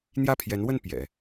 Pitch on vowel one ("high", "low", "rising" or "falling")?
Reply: falling